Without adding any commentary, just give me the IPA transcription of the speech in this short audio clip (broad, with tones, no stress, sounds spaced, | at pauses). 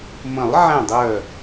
m ə̃˨˩˦ lˠ ʕ ɛ̃˧˩ dˤ œ˧˩